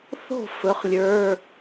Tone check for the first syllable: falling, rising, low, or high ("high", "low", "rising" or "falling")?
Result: falling